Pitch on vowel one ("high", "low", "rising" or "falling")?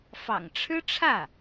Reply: low